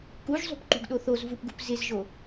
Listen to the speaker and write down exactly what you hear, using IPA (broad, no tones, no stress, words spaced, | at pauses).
kuʒzˤṳpǃṳɡɗo θozvupɡṳp zɪzʒo